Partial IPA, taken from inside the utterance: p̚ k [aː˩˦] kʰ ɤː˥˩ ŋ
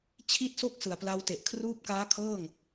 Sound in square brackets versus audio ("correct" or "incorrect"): incorrect